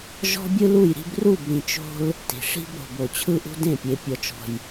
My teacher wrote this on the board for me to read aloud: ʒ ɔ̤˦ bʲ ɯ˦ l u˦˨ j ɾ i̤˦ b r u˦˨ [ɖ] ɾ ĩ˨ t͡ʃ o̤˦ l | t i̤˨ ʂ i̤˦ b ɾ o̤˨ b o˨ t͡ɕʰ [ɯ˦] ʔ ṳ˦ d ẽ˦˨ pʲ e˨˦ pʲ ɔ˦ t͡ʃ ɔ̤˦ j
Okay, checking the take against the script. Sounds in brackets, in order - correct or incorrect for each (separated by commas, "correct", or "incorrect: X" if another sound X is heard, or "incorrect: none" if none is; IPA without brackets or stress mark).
incorrect: b, correct